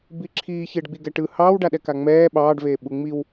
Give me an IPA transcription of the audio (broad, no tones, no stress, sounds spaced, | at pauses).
b i ǁʰ iː ç ɪː ɖ ɡ͡b i ɡ ɛ ʈ ɯ h ɑː w ɖ a ɗ ɛ k a ŋ͡m ɛː ɓ ɑː ɖ v eː ɓ u ŋ͡m i w